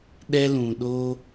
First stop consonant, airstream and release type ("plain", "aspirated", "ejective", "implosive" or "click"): implosive